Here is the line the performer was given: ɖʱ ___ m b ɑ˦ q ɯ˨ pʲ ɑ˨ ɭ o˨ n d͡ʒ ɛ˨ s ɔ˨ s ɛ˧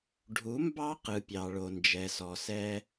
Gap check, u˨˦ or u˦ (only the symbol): u˨˦